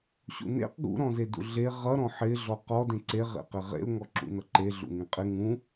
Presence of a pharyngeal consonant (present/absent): present